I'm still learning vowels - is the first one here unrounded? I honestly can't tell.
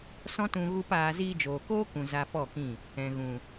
no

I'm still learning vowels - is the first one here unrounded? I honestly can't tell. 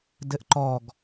yes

